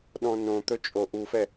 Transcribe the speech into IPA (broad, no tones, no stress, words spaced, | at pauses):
ɗɔ̃nõt̪ɵ t͡ʃʼoʔufɛ